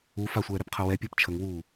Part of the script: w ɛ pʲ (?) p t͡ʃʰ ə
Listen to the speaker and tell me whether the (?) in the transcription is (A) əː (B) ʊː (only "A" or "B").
A